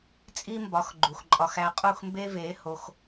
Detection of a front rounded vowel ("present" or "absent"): absent